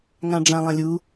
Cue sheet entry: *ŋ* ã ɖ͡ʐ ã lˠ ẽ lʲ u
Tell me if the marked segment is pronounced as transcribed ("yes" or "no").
yes